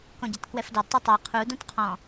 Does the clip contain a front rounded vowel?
no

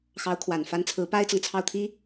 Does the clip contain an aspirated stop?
yes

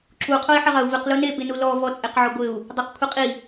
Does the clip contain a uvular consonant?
yes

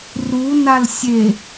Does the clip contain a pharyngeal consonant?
no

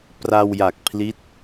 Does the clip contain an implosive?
no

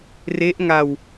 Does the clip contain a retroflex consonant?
no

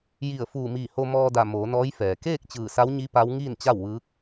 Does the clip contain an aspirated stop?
no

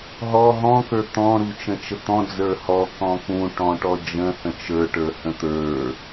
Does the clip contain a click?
no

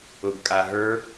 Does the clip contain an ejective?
yes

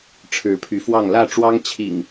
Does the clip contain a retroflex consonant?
yes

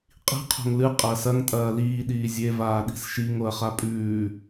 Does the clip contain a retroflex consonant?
no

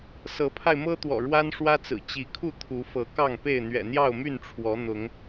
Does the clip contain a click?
no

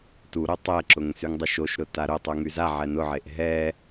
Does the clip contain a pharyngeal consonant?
yes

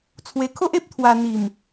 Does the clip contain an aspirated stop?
yes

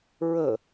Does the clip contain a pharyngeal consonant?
no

